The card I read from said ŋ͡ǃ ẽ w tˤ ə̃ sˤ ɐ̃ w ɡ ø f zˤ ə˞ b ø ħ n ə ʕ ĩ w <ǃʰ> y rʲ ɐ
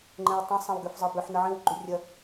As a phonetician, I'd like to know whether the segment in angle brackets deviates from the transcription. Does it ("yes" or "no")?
yes